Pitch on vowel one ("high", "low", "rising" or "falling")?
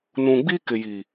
low